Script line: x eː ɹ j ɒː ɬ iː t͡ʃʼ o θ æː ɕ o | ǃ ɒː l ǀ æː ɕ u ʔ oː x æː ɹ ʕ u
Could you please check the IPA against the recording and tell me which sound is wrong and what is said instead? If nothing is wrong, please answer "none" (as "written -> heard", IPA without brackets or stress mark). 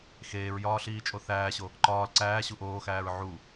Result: none